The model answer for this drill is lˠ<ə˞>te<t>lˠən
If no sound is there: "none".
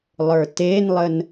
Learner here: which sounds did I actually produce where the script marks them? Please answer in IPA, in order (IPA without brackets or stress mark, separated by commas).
ə˞, n